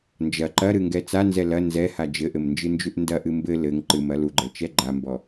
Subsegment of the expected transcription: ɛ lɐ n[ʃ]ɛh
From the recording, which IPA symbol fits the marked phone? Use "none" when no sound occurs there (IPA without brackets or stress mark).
z